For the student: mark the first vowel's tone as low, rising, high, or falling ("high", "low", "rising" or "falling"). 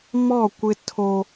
falling